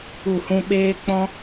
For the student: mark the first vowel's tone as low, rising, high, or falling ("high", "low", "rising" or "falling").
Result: falling